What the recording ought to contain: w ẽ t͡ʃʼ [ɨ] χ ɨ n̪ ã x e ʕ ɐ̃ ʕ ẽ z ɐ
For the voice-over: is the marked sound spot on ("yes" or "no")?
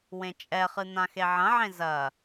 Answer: no